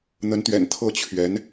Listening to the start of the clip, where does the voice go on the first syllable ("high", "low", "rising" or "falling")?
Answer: rising